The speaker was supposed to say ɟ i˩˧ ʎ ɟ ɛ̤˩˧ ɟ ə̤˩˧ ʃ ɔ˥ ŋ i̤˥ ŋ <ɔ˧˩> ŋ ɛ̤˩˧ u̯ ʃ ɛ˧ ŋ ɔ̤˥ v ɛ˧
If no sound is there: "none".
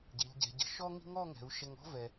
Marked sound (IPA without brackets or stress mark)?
ɔ˥˧